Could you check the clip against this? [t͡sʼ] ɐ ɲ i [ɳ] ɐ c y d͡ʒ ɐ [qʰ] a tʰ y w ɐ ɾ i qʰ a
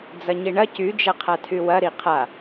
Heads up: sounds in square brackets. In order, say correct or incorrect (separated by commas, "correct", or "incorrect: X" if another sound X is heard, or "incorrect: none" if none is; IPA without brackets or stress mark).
incorrect: d͡z, correct, correct